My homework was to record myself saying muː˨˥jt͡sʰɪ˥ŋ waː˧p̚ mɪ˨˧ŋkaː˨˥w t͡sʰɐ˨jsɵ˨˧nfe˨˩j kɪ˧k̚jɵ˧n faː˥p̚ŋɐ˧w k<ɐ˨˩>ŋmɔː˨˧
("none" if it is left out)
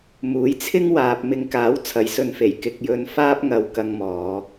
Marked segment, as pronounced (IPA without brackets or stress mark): ɐ˧